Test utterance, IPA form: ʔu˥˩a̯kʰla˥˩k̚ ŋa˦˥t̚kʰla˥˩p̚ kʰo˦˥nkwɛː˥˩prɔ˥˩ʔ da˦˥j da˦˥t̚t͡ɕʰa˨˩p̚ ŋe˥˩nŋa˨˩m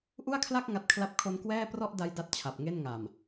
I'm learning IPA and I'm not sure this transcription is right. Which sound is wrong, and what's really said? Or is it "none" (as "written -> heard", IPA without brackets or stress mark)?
none